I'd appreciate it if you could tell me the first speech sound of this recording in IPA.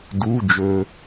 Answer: d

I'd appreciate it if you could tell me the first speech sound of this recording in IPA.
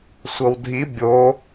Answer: sʷ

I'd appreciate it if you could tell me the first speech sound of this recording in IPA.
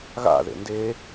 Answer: ɣ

